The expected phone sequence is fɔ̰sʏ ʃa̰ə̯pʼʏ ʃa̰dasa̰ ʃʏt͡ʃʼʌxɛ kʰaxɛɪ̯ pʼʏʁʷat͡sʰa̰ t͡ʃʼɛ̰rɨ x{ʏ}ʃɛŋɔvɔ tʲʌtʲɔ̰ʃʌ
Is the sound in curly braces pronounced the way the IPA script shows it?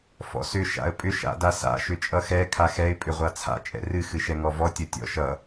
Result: no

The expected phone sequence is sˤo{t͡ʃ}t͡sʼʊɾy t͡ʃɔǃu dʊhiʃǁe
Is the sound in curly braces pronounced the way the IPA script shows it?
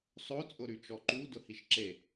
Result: no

